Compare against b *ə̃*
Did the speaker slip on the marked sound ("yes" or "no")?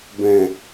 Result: yes